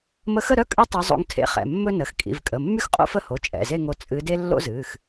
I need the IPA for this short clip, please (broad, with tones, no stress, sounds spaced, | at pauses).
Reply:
m ə˧˥ x ə˥˧ ɾ œ˥ kʼ ɨ˥ tˤ o˧˥ zˤ o̰˧˥ ŋ tʰ ḛ˧˥ χ ɛ̰˩˧˩ mː ɵ˥ n ə˩˧˩ x kʼ ḭ˩˧˩ v kʼ ə˩˧˩ mː y˥ x qʼ o̰˥ f ə˥˧ h o˩˧˩ t͡ʃʼ ɛ̰˩˧˩ z e˥˧ ŋ o˧˥ t͡sʼ ɨ˧˥ d e˥ lː o̰˥ z ɨː˩˧˩ x